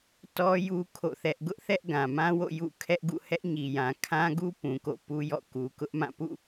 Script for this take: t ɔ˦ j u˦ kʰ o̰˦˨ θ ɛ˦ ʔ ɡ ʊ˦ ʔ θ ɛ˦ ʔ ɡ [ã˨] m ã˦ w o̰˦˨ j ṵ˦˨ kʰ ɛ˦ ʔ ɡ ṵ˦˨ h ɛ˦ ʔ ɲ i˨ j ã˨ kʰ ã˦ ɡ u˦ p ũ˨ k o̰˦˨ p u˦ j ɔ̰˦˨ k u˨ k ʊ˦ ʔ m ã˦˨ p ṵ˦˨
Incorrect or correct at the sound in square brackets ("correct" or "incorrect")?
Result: correct